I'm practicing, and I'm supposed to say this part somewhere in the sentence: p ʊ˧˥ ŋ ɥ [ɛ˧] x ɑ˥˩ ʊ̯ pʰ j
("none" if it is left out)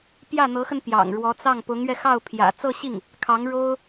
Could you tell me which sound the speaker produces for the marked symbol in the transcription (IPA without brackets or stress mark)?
ɛ˧